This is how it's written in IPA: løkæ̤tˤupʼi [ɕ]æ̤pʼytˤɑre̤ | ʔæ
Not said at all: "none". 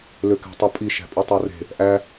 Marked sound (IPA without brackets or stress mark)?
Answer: ʃ